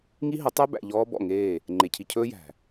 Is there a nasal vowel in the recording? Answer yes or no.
no